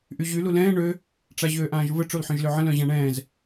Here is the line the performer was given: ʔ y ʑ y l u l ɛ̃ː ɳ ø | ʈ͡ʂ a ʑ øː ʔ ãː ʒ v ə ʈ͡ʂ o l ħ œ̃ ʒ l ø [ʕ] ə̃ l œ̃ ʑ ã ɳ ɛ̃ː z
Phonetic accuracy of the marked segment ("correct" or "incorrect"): correct